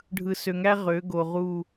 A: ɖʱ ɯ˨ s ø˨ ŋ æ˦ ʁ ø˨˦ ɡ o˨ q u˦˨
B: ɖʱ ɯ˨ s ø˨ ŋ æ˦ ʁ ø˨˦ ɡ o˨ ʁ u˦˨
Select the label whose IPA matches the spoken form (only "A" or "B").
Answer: B